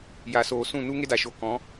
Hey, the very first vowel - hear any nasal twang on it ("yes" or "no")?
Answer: no